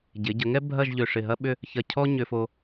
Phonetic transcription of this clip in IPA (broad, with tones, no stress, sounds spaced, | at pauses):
ɟ ɪ˩˧ ɟ ə˩˧ ŋ ɛ˥ bʱ ɐ˥˧ ʒ ʎ ʏ˧˩ ʂ ɪ˧˩ ɦ ɐ˥ ɓ ʏ˥˧ | ç ɐ˧˩ cʰ ɔ˥ ɲ ʏ˧ f o˧